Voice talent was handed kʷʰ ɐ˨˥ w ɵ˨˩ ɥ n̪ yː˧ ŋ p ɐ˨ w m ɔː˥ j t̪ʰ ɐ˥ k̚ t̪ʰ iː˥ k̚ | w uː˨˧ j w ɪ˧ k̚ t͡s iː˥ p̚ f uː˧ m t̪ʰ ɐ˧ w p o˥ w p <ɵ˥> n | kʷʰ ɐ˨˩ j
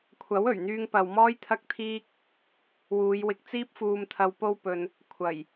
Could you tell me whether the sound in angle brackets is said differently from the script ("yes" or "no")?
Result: yes